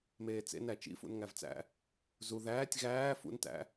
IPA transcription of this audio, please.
m eː t͡s ḛ n æ t͡ʃ ḭ f ṵ n ŋ æ v t͡s æ̰ | z u ð æː tʲ ɣ æː f ṵ n t æ̰

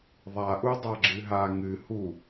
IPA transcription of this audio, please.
ðˤ a ʔ u dˤ a ɡ͡ǁ ɨ ɦ a ŋ ɨ h u

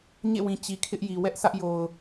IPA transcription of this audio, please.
ɲ ḛ˦˨ w ĩ˨ t͡ɕ i˨ kʰ ɪ˦ ʔ j i˨ w ɛ˦ ʔ sʰ ä˦ ʔ j o˨ ʊ̯

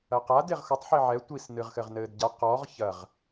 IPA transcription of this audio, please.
ɐ q a d e ʁ x o tˤ ħ i ʕ ɛ tʷ i s n ɨ ʁ x ɘ ʁ n ɘː d ɟ a q ɔ ʁ ç ɐ ʁ

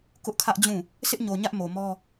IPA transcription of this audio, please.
k ʊ˦ ʔ kʰ ä˦ ʔ d͡ʑ ũ˦˨ | sʰ ɪ˦ ʔ ɲ o˨ ɲ ä˦ ʔ m o˨ m ɔ˦

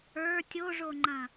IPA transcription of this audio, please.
ə˞ tʲ o ʐ o ŋ͡ǃ ɐ̃

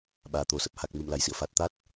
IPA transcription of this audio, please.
ɓ aː˨˩ t̪ o˨˩ s ə˦˥ p̚ h a˨˩ k̚ m ɨ˧˩ m l a˨˩ j s ḭ˧˨ ə̯ f a˨˩ t̚ t̪ a˦˥ t̚

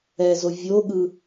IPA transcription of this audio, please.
ɛ z o vʲ o ɠ ɯ

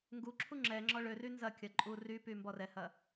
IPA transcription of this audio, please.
ŋ ɡ u ǁʰ u ŋ͡ǁ ɛ ŋ͡ǁ ɔ ɭ ø r y n z ɐ kʲ ɐ ǃʼ u r y p y m b ɔ r ɛ h ɐ

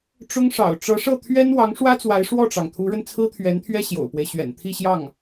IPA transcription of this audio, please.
ʈ͡ʂ ʊ˥ ŋ ʂ ɑ̰˨˩ ʊ̯ ʈ͡ʂ ɤ˧˥ ʂ ɤ˥˩ t̪ʰ ɥ ɛ˥ n w ɑ˧˥ ŋ ʂ w ä˥ t͡s w a˧˥ ɪ̯ ʂ w ɔ˥˩ ʈ͡ʂ ɑ˩ ŋ t̪ʰ u˧˥ ɻ ə˧ n t͡sʰ ɹ̩˥ t̪ʰ ɥ ɛ˧˥ n t̪ʰ ɥ ɛ˥ ɕ j o̰˨˩ ʊ̯ p w e˦ ɪ̯ ɕ ɥ ɛ̰˨˩ n t̪ʰ i˥˧ ɕ j ɑ˥˩ ŋ

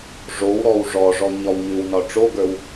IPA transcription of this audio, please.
ʐ o w ɾ ɔ w ʐ ɔ ʐ ɔ ɲ ɒ w ɲ ʉ w n ɒ ʈ͡ʂ o ɡ ə˞ w

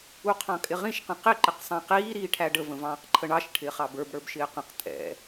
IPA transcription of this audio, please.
u qʰ ɑ̃ kʼ ɪ ʁ ĩ ʃ q ə̃ q ɪ ǃ ɪ q sˤ ɑ̃ q iː ɾ iː ʈʰ æ ɖ ə v ə̃ v ɑ̃ː q ǃʰ ə ɳ ɑ ʃ ʈʰ ɪː χ ɑ b ə˞ b ɽ ə˞ b ʃ ɪː q ə̃ q tʼ ɛ̰

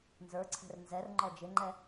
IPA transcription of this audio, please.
n z ə˞ ǀʰ ɛ̤ r n z ɛ r ŋ͡ǃ ɔ d͡ʒ ɪ ŋ͡ǃ ɛ

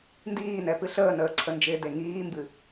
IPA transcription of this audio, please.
n d iː n ɛ p ɨ ɬ əː n əː ǀʰ ə n d͡ʒ ɪː d e ŋ iː m b ɨ

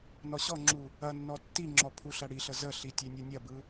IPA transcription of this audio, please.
n ɔ ɕ ɔ ŋ͡ǁ u | ɐ nː ɔ tː i ŋ͡ǁ ɔ pʰ u ɬ ɐ ɽ i ɬ ə z ə ɬ i tʲ e nʲ ɯ nʲ ɐ b ɯ

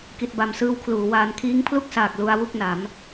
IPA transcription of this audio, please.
k i˨˩ t̚ b a˨˩ m s ɯː˧ w kʰ l uː˩˦ w aː˧ n kʰ iː˦˥ ŋ pʰ l u˥˩ k̚ s aː˨˩ k̚ l u˧ a̯ w u˥˩ k̚ n a˩˦ m

